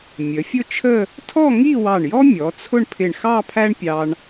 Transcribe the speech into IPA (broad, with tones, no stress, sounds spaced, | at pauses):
mʲ ə˩˧ fʲ ʊ˥˧ t͡ʃʰ ə˥˧ | tʰ ɔ˥˧ ŋ i˥˧ w ɑ˧˩ ɳ j ɔ˥ mʲ ɔ˩˧ t͡sʰ ʊ˥˧ ɳ pʰ ɪ˧˩ ɳ x ɑ˥˧ pʰ æ˥ ɳ pʲ ɑ˧ ɳ